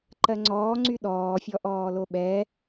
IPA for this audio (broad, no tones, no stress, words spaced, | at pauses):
ǃɜŋ͡ǀɔːŋ͡ǀy ɗɔːfʲɔʔɔːlo ɓɛ